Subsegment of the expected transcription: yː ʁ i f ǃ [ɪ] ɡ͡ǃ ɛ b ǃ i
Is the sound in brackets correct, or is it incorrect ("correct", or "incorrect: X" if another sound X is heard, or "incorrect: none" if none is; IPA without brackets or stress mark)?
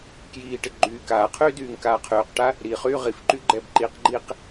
incorrect: y